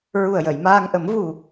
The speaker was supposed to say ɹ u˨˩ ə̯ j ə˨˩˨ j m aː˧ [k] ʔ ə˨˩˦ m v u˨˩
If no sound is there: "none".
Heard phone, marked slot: ŋ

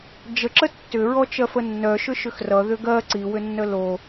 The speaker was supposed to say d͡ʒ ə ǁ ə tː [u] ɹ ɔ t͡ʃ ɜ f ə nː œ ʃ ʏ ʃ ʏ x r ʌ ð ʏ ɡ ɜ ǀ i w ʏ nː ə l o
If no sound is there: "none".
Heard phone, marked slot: ʏ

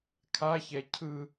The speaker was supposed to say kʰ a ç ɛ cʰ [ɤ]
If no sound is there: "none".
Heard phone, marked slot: ɯ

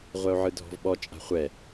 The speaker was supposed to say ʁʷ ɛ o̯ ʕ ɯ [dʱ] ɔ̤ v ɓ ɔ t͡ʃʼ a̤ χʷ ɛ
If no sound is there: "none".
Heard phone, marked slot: dʱ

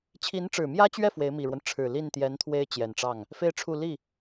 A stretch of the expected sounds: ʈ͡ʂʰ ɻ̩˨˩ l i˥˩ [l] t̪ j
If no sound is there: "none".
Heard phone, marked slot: n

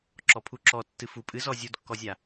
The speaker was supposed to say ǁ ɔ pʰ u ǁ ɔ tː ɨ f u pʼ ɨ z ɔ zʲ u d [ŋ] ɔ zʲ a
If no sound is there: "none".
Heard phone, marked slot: kː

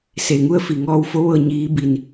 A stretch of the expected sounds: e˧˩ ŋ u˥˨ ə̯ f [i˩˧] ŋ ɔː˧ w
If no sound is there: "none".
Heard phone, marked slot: i˧˩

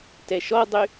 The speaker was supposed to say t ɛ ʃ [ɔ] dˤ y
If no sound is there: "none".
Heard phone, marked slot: ɔ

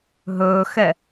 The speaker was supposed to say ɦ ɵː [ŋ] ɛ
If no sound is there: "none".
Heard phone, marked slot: x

